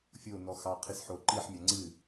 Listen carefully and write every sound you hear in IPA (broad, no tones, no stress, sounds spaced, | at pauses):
fʲ o n ɔ x ɑ qʰ ɨ s ħ o ǃ i ħ mʲ a ŋ͡ǀ ɨ